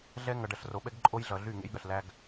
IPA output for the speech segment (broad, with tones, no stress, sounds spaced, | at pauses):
ɮ ɛ˦ ŋ ʌ˨ ɖ ɐ˨ ɬ r o˨ ɓ ɛ˦ ɡ ǃʼ o˦ j ɮ ʌ˨ ɮ y˦˨ ŋ ḛ˦ j ɠ ɐ˨ ɬ l æ˦ ɡ